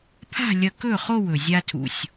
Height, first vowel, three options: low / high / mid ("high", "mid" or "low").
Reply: low